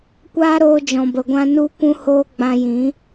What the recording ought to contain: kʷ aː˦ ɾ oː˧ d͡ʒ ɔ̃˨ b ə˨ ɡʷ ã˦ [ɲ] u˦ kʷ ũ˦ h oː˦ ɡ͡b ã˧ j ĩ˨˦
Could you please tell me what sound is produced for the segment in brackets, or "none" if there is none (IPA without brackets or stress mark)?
n